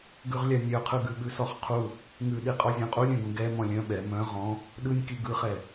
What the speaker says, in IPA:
ɡ ʉ ʁ lʲ a nʲ œ qʰ ɯ ɡ ʉ ɓ ʉ s ɔ χ qʰ u | ŋ ʉ ɗ i qʼ ɔ zʲ ũ qʼ u lʲ œ̃ ɡ ũ ɡ ɛ m ɔ̃ lʲ œ̃ ɓ ɛ m œ̃ ʁ ɔ̃ | ɗ ɯ nʲ k i ɡ ɯ χ ɛ

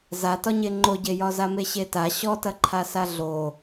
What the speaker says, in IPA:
z a t ɒ ɲ e ŋ͡ǃ o ɟ e j ɒ z a m e ɕ e t a ɕ ɔ t ɐ ǃʰ a s a ɮ o

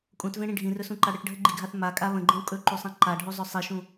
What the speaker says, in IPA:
kʼ ũ t v ẽ ɽ ĩ ɖʱ ĩ r ɵ s ũ ǃ a ɽ ə ʈ ɖʱ ə ɡ͡ǃ i ɡʱ a θ m a kʼ a β ə̃ ɡ͡ǃ ẽ w kʼ ɵ ǃ u sˤ ẽ ǃ a ɖʱ u zˤ ɵ sˤ i ʃ ũ

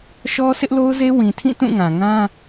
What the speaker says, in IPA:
ʃ ɔ˦ s ɪ˦ ʔ l o˦ ʊ̯ z e˦ w ĩ˨ tʰ ĩ˦˨ t ũ˦˨ ŋ ã˨ ŋ ã˦

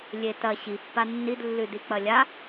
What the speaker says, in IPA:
lʲ e t ɐ ɕ i pː a nː i d lː ʉ d i k͡p ɐ lʲ a

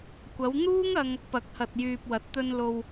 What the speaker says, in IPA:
kʷ ɐ˨˧ w n̪ uː˥ ŋ ɐ˧ ŋ | p ɐ˨˥ k̚ h ɐ˨ t̚ j yː˨ p̚ w ɐ˨˥ t̚ t̪ ɵ˧ n l o˧ w

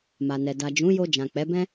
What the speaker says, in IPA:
m a˨ n ɛ˨ d a˨ d͡ʒ ũ˨˦ j o˧ d͡ʒ ã˨ k͡p ɛ˨˦ b ɛ̃˦

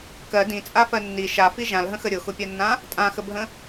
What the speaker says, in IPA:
k ɜ d ĩ t͡sʼ a f ɜ nː i ʃ a f i ʒ ã l ɦ ə̃ x ə ɾʲ ʊ x ʊ pʲ ɜ nː ã | tʼ ã x ə bʱ ə̃

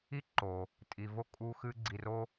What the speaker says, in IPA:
i˥ ǃ o˩ | tʼ i˨ v o˥ kʼ u˦ x ɨ˦ ɡ͡ǀ i˨ r o˦

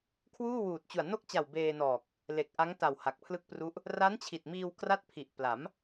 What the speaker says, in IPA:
kʰ w uː˥˩ w uː˨˩ t̚ t͡ɕ u˨˩ a̯ n o˥˩ k̚ t͡ɕ a˨˩ w b eː˧ n ɔː˨˩ k̚ | l e˨˩ k̚ ʔ a˦˥ ŋ t a˨˩ w h a˨˩ k̚ pʰ l ɯ˥˩ k̚ p r u˦˥ ʔ | r a˦˥ n t͡ɕʰ i˨˩ t̚ m iː˧ w k r a˥˩ t̚ pʰ i˨˩ ʔ p l a˩˦ m

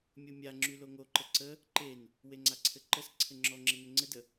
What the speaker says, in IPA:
mʲ o mʲ a ŋ͡ǁ y l o ŋ o ǃ ə ǀ ə | ǃ e n | w e ŋ͡ǀ a ǀʰ ɘ ǃ ə s ǀʰ ɘ ŋ͡ǁ ɔ ŋ͡ǁ ɘ n ɘ ŋ͡ǀ ɘ d ə

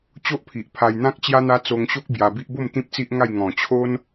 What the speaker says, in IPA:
t͡ɕ o˦ ʔ pʰ i˨ ʔ pʰ a˧ j n̪ ã˦ k̚ t͡ɕ j a˦ n̪ a˦ t͡s o˧ ŋ ɕ o˦ k̚ b j a˧ b i˦ ʔ b o˥˧ m t̪ ĩ˦ p̚ t͡s i˦ ʔ ŋ a˥˧ j ŋ ɔ̃˨˩ t͡ɕʰ o˦ n

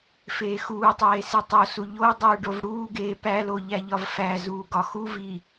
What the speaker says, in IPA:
f eː x uː tˤ eː s i tˤ o s u ʎ o dˤ uː ɖ o v ɽ uː ɡ eː p æ l o ʎ æ ʎ ɒ v f æ z uː ɡ ɒ x u v iː

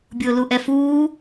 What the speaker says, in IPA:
bʲ ʊː l u ʔ ɛ f uː

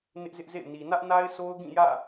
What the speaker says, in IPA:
n ɪ˦ ʔ z ɪ˦ ʔ z ḛ˦˨ ɪ̯ n i˨ n ä˦ ʔ n a˦ ɪ̯ s o˦ ʊ̯ ɡ ĩ˦˨ j ä̰˦˨

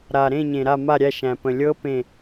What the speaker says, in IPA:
ɾ a˨ ɾ ẽ˥˧ ɲ ẽ˨ ɾ a˥˧ m a˥˧ ɾʲ æ˥˧ ʃ æ̃˨ p ə̃˨ lʲ ɤ˦˥ p ẽ˥˧

